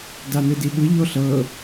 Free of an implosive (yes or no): no